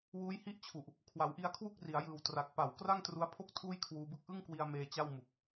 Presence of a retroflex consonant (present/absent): absent